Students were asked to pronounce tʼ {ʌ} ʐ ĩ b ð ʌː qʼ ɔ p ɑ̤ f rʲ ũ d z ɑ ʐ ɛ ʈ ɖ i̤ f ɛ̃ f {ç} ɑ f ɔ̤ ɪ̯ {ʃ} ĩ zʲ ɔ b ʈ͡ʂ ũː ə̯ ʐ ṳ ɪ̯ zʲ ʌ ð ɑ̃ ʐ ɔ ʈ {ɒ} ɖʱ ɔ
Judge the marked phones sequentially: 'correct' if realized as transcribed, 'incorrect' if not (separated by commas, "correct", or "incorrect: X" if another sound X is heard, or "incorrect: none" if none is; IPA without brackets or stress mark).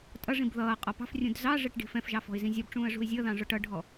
correct, incorrect: ʒ, incorrect: z, incorrect: ʌ